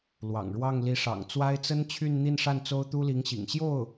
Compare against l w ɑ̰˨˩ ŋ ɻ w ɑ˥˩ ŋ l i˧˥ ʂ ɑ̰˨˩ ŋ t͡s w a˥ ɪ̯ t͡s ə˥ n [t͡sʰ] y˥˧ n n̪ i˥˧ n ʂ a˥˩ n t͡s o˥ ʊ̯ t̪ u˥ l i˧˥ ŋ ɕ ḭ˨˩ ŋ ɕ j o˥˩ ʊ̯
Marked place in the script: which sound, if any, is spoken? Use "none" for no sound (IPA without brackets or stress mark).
t͡ɕʰ